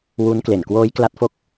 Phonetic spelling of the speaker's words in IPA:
w u˦˥ n k l e˨˩ n k w oː˦˥ j k l a˦˥ t̚ f o˦˥ k̚

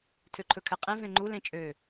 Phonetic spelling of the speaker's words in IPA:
tʰ ø ǃʰ ɵ kʰ ɛ qʼ ẽ v ẽ ŋ͡ǃ u l ẽ t͡ʃʼ ø

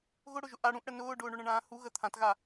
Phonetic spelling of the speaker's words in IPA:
ɣ ʊ ɽ ʊ ʒ ʊ ʔ a ɽ ũ ʔ ɽ ə n ʊː ɖ ʊː ɳ ʊ ɳ ə̃ ɳ ãː h u ɣ ə t̪ʰ ã t ɣ a

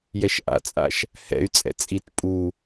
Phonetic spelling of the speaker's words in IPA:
j ɛ ʃ ʔ a̰ t͡sʼ a̰ ʃ | h ɛ̰ y̯ t͡sʼ ɛ̰ t͡sʼ i t pʼ u

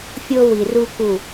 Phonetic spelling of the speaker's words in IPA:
fʲ o˦ w i˨ r u˦ k u˦˨

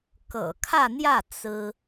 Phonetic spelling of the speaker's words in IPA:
k ɤ̰˨˩ kʰ ä˥˧ n̪ j ä˥˩ t͡s ɹ̩˥

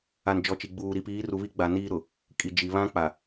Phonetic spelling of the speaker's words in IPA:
a˨ n d͡ʒ ɔ˨ t͡ʃ i˨ ɡ͡b uː˨ ɾ i˨ p iː˨˦ r u˨ β i˦ ɡ͡b a˨ n iː˦ ɾ ʊ˨ | kʼ i˨ d͡ʒ i˨ β ã˦ k͡p a˨

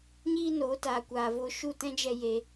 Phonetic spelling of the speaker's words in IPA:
ɲ iː˦ n oː˨˦ t aː˨ kʷ aː˨ v oː˧ ʃ u˦˨ t ɛ̃˦ d͡ʒ ɛ˧ j e˧

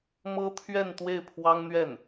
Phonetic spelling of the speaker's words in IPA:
m ɤ˥ t̪ʰ ɥ ɛ˥˧ n t̪ w e˥˩ ɪ̯ pʰ w ɑ˥ ŋ n̪ ɥ ɛ˥˩ n

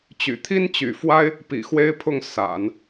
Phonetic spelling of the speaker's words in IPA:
t͡ɕ y̰˨˩ t̪ʰ i˥ n t͡ɕ y̰˨˩ f w a˥ ɪ̯ | p ḭ˨˩ x w e˥ ɪ̯ pʰ ʊ˥˩ ŋ s a̰˨˩˦ n

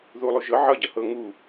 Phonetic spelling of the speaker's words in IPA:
ð u lˠ u ʒ ɤ ʕ ʌ ɟ ʌ h ɤ ŋ u

